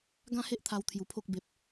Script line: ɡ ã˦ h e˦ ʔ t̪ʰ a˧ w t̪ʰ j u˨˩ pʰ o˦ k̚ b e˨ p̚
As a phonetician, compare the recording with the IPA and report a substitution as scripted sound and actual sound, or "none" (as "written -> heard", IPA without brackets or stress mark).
none